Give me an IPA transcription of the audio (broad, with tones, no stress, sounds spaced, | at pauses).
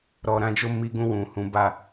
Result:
ɾ ɔ˧ ɾ ã˧ d͡ʒ o˧ m i˧ ɡ ũ˧ w ũ˨ h ũ˨˦ b a˦˨